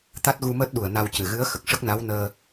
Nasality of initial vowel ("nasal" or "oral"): oral